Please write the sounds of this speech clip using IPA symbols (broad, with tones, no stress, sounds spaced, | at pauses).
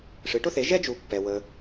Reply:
ʂ ɨ˩˥ ʈ ʊ˥ θ e˩˥ ʒ ɛ˥ d͡ʒ u˨ pː ɛ˨ w ə˨